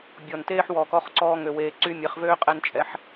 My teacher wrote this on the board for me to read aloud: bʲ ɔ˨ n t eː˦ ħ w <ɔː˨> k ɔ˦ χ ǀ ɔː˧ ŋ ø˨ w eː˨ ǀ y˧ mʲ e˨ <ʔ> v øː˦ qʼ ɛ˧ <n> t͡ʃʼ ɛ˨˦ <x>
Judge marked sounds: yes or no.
yes, no, yes, no

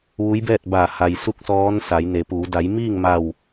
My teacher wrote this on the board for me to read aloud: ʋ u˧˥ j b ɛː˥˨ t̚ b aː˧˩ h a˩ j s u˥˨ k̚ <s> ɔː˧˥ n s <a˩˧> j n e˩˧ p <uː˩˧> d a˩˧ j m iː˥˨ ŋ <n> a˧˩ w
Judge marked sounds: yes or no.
yes, yes, yes, no

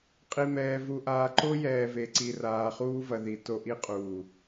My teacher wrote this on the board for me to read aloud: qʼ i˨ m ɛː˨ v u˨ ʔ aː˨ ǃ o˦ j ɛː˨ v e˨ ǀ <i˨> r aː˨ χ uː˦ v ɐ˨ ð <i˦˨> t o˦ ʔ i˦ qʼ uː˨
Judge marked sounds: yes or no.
yes, no

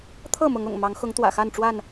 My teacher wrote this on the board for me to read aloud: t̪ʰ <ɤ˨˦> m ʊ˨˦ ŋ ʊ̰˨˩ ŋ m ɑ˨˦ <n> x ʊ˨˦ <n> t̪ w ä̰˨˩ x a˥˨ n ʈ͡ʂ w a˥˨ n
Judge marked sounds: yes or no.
no, no, no

